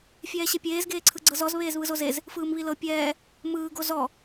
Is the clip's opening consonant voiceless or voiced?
voiceless